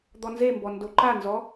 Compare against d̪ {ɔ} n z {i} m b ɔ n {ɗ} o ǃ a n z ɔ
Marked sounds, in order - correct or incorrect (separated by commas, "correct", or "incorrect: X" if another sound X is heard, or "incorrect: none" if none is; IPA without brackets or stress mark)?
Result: correct, incorrect: e, incorrect: d